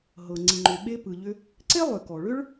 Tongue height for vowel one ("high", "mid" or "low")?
mid